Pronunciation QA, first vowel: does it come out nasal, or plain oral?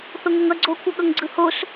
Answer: oral